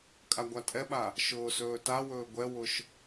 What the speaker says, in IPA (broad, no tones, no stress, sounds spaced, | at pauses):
kʼ a ɡʷ a tʼ ɛ ɓ a | ʃ ʊː s ɵː t a w ɵː ɡʷ ɛ w ʊ ʃ